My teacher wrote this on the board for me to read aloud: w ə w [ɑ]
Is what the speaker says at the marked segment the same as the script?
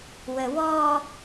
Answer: no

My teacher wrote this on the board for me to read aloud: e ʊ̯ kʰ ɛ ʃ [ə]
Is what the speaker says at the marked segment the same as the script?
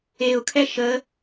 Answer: yes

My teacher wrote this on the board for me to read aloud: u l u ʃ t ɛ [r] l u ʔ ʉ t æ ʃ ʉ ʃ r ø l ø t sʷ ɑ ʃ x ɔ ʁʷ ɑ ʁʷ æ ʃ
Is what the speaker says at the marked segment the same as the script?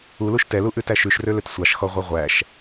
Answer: no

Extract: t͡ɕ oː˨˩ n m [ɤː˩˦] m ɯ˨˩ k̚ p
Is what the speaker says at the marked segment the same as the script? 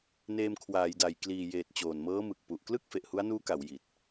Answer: no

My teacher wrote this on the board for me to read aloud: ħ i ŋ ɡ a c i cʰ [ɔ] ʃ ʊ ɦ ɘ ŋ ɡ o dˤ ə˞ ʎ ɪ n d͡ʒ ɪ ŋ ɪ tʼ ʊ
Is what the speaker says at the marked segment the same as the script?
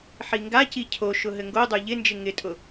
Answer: no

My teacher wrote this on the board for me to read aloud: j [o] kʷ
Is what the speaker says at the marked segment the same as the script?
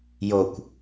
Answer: yes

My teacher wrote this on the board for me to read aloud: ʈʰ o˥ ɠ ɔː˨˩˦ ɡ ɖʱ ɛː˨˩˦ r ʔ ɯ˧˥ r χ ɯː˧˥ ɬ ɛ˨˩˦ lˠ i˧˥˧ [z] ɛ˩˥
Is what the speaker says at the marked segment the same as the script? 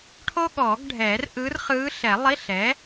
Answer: no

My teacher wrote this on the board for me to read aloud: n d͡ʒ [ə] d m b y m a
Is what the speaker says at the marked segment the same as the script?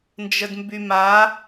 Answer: yes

